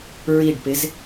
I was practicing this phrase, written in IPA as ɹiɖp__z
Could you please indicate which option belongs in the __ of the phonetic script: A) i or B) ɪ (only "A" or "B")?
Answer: B